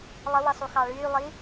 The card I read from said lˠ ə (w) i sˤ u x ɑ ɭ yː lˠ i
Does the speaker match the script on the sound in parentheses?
yes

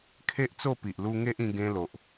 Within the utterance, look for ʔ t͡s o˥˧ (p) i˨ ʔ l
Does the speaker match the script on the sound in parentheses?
yes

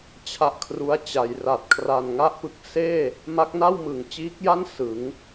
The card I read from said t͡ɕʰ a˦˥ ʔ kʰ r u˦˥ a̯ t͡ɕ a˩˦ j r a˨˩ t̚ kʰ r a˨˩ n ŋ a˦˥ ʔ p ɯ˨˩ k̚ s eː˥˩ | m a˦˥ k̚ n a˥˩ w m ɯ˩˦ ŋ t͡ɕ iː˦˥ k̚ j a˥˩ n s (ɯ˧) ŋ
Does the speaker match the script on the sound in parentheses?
no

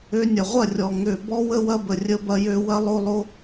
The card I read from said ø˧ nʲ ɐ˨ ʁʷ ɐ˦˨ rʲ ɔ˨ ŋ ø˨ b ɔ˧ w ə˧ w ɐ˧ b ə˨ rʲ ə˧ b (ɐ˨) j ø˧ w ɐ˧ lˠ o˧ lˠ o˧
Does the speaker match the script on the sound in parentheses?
no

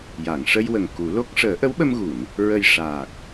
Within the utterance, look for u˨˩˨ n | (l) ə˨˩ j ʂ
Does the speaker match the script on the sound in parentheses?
no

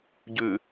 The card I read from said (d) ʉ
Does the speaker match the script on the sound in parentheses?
no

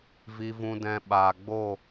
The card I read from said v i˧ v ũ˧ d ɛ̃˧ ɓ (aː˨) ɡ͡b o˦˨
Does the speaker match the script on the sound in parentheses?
yes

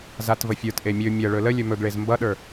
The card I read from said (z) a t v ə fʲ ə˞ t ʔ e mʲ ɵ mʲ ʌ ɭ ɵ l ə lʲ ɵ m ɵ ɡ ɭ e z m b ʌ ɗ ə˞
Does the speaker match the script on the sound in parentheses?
yes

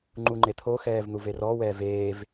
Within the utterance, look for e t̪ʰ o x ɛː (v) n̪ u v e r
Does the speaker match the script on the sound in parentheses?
yes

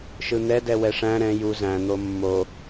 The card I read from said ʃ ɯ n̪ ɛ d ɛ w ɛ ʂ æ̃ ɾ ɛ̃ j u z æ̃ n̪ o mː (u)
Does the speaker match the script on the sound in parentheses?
no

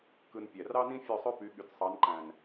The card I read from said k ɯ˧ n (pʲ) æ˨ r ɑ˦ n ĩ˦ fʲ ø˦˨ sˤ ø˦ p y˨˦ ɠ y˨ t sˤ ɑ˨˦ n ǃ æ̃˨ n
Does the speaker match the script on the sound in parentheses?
yes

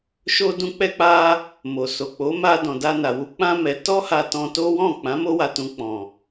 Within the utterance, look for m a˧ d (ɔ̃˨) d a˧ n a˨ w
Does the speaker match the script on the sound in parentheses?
yes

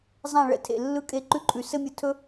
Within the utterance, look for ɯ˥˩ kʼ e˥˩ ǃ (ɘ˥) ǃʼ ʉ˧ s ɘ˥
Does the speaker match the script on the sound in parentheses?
no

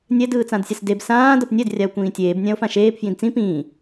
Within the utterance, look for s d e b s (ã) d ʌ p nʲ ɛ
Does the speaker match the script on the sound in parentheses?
no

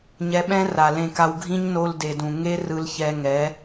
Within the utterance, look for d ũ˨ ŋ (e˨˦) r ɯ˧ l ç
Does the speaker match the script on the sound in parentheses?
no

